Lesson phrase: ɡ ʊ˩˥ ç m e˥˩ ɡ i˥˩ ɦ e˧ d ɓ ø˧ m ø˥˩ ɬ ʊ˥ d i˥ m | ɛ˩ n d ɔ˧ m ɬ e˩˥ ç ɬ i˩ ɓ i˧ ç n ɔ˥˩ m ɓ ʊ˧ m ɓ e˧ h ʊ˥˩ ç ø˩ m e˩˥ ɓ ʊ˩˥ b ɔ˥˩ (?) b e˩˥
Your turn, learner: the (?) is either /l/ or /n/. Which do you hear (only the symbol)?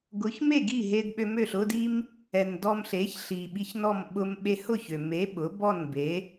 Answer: n